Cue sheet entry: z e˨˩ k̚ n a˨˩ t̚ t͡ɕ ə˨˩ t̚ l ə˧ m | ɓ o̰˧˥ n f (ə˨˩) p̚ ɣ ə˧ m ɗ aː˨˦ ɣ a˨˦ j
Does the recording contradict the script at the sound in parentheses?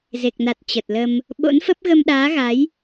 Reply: yes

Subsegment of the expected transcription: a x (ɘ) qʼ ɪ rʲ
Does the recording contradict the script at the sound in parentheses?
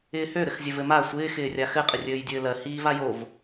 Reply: no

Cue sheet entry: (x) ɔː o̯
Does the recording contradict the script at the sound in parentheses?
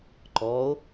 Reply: yes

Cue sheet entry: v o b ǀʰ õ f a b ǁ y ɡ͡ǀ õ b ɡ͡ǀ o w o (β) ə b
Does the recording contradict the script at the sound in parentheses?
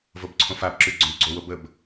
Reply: yes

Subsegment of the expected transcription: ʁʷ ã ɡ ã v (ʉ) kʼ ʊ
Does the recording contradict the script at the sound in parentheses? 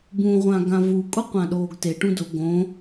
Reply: yes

